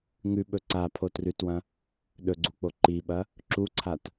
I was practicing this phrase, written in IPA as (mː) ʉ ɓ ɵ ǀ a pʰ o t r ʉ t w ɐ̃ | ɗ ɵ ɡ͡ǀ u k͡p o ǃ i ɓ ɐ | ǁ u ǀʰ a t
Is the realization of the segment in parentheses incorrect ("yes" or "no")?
yes